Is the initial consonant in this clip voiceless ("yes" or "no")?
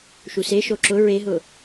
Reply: yes